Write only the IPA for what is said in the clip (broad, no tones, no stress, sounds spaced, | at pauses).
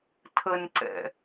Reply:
tʰ ə n ǀ ɛ̰